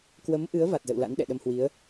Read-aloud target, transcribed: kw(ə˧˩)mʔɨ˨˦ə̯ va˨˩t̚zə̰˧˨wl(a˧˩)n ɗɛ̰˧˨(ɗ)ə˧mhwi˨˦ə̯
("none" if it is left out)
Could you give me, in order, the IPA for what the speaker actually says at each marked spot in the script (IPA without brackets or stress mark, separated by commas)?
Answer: ə˨˦, a̰˧˥, ɗ